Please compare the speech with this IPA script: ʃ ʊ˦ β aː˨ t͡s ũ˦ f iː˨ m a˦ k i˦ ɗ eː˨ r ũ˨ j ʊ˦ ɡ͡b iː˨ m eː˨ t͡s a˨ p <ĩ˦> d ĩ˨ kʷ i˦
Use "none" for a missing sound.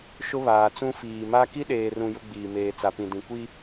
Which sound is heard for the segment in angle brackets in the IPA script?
ĩ˨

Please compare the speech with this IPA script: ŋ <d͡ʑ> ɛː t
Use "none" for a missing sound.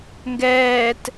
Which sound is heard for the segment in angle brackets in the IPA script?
ɡ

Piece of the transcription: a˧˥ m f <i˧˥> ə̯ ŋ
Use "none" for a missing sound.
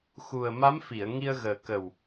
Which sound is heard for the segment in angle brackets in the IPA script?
i˨˩˨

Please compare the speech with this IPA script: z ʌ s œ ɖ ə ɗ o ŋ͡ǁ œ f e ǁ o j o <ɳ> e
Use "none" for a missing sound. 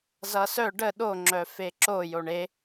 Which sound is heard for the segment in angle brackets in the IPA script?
ɳ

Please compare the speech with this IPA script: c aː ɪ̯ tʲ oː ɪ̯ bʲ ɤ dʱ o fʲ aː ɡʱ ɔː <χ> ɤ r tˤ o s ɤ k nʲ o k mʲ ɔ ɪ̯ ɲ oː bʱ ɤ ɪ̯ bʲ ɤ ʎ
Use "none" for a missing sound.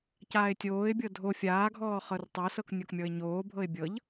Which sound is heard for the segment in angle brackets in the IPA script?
χ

